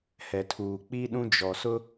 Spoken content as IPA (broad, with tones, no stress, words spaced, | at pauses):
hɛ˨tʰuː˨ k͡pi˦ ɗũ˦d͡ʒɔ˨sʊ˦